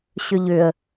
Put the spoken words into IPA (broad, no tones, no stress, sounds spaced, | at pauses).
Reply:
ɕ ʏ ʎ ʏ ə̯